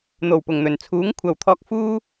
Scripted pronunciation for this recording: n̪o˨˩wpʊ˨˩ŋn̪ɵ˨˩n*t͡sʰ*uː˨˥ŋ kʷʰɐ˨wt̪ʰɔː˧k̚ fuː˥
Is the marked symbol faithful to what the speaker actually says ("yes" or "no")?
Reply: yes